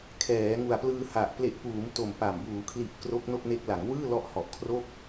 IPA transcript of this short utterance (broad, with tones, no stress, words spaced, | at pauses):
kʰɛː˩˦ ŋu˨˩a̯plɯː˧ha˨˩ʔ ple˨˩ʔpuː˩˦m to˨˩m pa˨˩m buː˩˦kʰli˨˩ʔ kro˦˥k̚no˥˩k̚ne˦˥k̚ la˩˦ŋwɯː˥˩lɔ˦˥ʔ hɔ˨˩ʔkʰro˥˩k̚